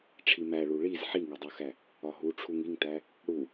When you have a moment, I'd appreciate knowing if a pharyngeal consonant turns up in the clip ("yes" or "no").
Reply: yes